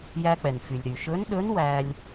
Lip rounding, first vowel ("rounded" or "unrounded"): unrounded